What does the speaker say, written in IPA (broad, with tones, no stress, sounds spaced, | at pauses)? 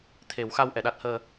t̪ʰ e˨˩˦ w x a˧ w ʔ ɛ˨˩˨ ɗ a˦˥ t̚ h əː˧